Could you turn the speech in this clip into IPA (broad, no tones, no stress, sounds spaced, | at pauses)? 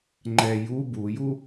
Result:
ŋ͡ǃ ɛ j u b u j u